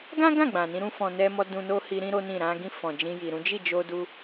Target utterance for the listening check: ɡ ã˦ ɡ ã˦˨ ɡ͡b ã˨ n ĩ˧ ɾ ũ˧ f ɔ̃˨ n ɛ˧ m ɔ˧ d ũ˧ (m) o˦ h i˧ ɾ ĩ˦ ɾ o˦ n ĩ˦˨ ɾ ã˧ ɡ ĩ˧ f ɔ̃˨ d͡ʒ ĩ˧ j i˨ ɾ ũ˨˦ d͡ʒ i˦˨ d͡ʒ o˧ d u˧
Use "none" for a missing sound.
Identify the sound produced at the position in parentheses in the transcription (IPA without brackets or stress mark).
n